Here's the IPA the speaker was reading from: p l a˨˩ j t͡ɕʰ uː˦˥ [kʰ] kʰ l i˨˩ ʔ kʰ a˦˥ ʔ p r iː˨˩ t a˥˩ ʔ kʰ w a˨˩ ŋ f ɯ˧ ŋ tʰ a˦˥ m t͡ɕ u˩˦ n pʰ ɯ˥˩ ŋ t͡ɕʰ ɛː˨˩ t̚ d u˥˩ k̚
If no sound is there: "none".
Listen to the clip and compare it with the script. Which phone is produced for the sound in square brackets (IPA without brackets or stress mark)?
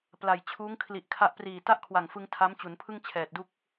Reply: ŋ